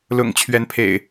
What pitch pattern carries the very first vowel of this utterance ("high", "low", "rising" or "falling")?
low